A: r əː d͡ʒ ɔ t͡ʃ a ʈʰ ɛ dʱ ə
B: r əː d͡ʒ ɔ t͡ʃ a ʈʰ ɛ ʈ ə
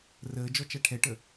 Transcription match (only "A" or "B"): B